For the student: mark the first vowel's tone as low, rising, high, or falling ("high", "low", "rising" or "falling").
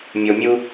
low